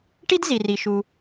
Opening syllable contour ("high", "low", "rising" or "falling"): high